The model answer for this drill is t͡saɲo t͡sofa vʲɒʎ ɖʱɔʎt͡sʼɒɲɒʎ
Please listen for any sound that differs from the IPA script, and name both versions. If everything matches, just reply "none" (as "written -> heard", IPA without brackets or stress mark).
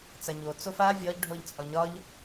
none